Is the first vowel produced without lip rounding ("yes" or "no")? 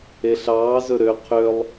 yes